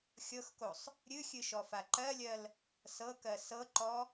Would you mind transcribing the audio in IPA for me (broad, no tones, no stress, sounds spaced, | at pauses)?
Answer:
xʲ ɤ x k o sˤ | ɾʲ ɨ xʲ ɨ ʃ ɔ f a ǃ ɜ lʲ ɜ l | s ɤ k ɜ s ɤ ǃ ɔ